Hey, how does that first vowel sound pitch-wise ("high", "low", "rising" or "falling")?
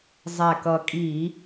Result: low